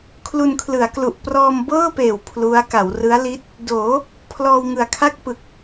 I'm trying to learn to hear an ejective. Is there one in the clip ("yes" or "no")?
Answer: no